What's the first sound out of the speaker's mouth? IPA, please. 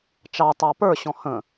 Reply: t͡ʃ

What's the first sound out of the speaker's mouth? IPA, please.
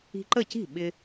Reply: i̤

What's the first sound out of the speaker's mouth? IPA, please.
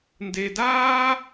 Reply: n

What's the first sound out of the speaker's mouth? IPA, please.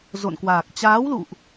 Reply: z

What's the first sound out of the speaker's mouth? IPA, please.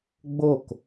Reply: ɡ͡b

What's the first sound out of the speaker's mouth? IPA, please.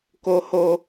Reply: k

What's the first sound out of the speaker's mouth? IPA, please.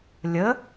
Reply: lʲ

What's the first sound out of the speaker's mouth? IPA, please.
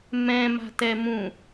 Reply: m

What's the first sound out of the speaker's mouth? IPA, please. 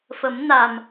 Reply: f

